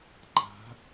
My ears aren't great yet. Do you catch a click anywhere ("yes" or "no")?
yes